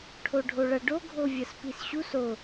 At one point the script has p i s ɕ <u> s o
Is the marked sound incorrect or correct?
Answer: correct